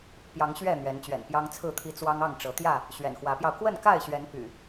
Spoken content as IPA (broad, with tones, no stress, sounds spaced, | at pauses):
p j ɑ˨˦ ŋ ɕ ɥ ɛ˥˨ n̪ ɥ ɛ˨˦ n t͡ɕ ɥ ɛ̰˨˩ n p j ɑ˦ ŋ t͡sʰ ɹ̩˥˨ t̪ʰ i˦ t͡s w ɑ˦ ŋ ɑ˥˨ ŋ ʈ͡ʂ ɤ˨˦ t̪ j ä˥˨ | ɕ ɥ ɛ̰˨˩ n x w ä˨˦ p j ɑ˧ ʊ̯ k w ə˥˨ n k a˥˨ ɪ̯ ɕ ɥ ɛ˨˦ n p y̰˨˩